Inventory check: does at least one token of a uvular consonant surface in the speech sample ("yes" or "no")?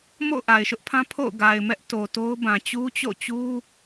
no